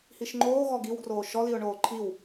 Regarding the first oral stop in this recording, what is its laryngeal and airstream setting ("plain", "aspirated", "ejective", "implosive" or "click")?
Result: click